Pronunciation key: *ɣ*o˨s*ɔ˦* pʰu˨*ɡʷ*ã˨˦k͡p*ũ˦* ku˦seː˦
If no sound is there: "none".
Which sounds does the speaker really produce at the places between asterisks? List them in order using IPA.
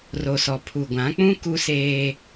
r, ɔ˨, ɡʷ, ũ˦

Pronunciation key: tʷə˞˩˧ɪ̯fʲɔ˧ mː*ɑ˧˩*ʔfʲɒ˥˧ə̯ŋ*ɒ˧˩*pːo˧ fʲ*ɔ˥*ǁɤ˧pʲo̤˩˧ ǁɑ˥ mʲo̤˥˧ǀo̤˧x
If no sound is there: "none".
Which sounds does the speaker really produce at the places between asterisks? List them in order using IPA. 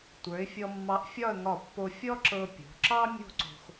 ɑ˧, ɒ˧˩, ɔ˥

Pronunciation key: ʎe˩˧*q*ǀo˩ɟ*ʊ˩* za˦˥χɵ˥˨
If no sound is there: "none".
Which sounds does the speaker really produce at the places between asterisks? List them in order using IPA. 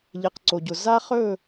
q, ʊ˩

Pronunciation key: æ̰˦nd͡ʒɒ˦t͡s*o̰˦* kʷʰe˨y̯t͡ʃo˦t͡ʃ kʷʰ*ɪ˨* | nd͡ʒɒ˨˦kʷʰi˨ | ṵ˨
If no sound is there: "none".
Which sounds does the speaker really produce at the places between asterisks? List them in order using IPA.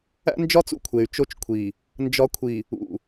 ṵ˦, i˨

